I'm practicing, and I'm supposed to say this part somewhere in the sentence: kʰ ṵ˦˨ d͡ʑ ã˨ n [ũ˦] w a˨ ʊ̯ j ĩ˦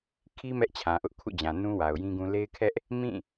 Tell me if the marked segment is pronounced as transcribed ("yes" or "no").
yes